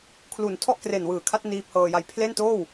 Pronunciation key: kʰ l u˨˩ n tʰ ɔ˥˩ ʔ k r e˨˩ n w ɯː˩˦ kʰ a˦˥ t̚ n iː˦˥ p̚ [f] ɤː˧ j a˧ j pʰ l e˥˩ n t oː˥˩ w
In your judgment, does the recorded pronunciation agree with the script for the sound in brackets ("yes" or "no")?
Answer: no